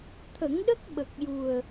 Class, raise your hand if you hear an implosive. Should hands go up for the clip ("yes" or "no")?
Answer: yes